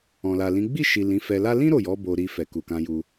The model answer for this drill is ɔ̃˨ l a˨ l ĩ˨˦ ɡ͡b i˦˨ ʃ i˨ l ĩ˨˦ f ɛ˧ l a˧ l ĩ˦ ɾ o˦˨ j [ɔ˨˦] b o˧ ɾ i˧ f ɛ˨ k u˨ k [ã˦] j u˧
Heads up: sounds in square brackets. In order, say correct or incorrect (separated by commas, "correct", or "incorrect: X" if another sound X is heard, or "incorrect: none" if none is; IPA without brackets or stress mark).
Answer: correct, incorrect: ã˧